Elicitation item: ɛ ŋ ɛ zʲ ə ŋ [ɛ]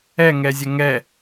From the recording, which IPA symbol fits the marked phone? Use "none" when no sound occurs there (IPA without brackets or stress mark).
ɛ